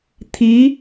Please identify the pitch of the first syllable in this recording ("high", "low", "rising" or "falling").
rising